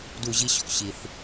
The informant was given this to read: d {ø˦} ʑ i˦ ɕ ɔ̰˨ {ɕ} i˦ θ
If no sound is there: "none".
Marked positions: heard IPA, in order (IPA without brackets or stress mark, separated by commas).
u˦, ɕ